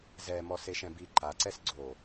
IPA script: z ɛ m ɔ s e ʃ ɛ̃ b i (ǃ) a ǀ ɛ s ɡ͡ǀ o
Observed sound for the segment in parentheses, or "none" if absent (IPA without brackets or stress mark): ǃ